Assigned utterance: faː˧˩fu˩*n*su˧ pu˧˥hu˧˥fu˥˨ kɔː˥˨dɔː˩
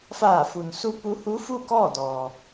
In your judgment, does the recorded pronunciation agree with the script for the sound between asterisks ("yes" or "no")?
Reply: yes